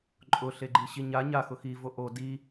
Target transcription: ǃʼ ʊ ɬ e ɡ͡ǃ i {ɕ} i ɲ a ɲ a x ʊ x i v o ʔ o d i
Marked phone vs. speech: correct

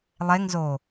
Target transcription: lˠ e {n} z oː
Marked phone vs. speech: incorrect: ŋ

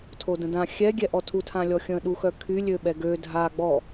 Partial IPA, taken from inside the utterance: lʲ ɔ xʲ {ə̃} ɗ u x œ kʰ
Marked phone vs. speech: correct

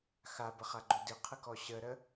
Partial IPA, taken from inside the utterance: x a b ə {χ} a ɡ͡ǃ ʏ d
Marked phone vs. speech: correct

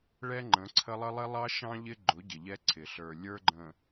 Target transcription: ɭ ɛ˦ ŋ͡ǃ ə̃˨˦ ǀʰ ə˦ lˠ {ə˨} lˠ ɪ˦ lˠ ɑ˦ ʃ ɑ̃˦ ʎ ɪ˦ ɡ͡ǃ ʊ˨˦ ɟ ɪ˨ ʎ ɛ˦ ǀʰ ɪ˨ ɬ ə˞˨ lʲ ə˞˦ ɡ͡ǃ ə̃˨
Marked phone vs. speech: incorrect: ə˦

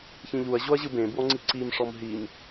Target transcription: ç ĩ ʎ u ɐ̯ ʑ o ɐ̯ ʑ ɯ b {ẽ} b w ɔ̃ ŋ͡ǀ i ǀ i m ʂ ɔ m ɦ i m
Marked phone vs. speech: correct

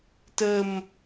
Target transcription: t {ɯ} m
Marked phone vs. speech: incorrect: ə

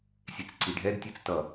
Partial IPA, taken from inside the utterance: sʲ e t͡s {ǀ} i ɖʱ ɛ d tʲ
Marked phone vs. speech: correct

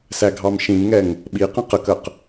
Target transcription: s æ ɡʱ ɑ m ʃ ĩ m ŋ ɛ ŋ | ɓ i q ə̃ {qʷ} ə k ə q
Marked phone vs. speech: incorrect: q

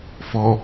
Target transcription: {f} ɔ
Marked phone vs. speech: correct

